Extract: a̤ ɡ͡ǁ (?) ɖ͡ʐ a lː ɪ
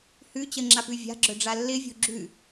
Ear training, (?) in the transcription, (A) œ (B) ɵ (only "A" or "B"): A